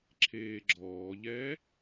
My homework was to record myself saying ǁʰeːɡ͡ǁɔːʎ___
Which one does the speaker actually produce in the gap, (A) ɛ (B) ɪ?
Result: A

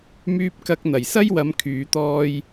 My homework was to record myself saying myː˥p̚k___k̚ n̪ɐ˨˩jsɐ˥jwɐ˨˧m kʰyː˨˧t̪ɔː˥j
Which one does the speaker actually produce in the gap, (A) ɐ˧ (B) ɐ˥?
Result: B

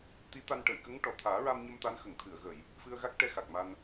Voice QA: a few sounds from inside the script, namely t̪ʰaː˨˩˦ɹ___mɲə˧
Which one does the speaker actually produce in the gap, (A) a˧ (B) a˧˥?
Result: A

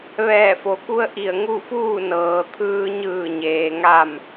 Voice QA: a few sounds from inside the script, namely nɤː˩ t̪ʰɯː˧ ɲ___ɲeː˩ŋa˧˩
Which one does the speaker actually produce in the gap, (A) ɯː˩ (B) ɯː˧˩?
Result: B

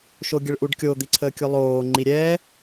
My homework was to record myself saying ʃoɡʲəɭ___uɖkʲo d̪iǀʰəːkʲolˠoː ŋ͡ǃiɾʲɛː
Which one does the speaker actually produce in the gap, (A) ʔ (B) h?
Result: A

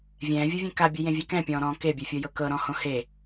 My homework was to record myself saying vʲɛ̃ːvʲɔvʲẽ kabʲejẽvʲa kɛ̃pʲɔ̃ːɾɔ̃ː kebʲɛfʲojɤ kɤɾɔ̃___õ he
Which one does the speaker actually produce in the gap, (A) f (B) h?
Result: B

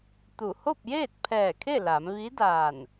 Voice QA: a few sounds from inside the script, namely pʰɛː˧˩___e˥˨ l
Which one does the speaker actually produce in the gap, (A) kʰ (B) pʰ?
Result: A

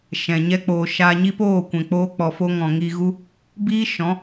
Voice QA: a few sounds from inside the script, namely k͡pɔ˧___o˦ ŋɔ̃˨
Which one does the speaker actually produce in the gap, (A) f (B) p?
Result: A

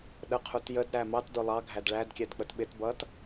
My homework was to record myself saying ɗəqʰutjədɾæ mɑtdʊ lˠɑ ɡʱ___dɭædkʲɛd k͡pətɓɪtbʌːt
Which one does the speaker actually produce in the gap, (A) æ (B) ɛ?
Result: A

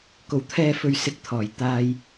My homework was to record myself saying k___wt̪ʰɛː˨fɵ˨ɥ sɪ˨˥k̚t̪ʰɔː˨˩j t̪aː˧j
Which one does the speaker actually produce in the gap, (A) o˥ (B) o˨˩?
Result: B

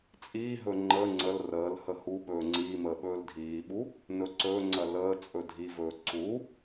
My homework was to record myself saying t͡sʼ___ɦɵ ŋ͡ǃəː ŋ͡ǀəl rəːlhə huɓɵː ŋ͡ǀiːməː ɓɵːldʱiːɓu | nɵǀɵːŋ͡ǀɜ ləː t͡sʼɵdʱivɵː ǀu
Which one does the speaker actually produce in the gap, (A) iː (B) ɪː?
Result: A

